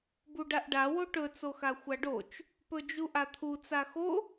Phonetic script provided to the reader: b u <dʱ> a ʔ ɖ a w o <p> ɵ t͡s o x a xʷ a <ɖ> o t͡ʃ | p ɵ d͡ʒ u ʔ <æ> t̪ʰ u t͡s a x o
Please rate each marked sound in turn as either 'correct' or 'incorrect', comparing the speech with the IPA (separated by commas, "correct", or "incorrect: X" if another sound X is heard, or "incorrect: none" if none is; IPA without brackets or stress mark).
incorrect: ɖ, incorrect: ʈ, correct, incorrect: a